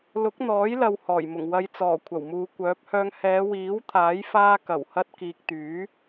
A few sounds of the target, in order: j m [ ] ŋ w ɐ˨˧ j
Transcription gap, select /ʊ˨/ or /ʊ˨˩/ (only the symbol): ʊ˨˩